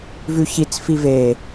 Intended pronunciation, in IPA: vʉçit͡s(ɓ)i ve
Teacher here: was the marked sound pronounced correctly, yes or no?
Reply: no